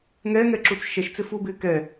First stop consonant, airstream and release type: click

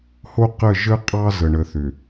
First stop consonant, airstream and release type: plain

